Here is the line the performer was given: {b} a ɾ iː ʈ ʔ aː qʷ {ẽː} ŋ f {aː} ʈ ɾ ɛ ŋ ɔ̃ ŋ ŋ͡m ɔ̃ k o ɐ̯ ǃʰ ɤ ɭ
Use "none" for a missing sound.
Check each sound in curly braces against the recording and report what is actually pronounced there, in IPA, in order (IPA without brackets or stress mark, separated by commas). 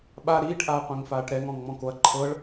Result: ɓ, ẽ, aː